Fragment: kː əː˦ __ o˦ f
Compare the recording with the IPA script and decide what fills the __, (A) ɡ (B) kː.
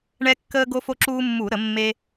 A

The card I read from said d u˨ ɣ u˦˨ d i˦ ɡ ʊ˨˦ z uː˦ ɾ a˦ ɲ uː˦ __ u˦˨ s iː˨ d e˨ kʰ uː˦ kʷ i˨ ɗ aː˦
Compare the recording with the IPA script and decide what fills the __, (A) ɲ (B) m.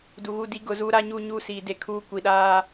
A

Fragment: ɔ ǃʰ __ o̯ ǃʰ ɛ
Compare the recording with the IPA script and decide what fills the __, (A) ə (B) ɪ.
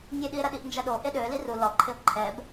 B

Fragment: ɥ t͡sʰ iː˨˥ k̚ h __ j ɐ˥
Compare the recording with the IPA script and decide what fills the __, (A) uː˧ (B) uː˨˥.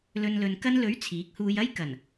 A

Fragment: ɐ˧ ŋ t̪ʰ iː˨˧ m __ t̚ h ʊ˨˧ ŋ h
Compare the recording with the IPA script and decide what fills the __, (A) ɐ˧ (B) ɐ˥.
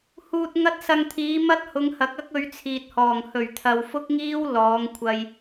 B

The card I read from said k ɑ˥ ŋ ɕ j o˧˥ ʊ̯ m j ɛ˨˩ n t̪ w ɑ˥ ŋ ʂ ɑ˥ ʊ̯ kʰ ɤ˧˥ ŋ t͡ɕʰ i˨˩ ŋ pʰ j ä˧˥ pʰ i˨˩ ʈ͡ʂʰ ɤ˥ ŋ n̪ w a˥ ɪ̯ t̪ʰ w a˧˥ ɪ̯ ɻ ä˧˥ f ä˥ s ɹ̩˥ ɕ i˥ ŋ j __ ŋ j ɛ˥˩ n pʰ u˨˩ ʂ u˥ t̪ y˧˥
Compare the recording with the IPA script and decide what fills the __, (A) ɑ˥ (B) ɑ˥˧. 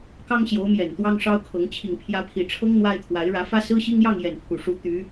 B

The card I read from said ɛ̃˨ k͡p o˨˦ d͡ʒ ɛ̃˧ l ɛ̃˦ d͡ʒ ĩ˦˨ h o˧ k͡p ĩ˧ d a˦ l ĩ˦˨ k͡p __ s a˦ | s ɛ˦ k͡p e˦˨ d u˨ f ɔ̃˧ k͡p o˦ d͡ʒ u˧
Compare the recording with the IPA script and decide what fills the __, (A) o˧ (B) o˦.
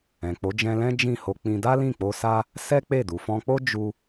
A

